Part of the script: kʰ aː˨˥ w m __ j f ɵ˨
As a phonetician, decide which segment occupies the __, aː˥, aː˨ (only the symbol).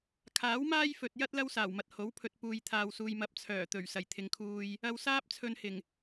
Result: aː˥